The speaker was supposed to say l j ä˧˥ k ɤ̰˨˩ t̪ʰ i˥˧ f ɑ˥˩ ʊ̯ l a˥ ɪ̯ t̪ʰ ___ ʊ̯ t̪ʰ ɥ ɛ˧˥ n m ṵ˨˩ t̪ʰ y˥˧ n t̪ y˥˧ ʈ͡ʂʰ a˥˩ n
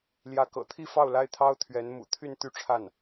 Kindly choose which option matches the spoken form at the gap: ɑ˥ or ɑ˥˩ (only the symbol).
ɑ˥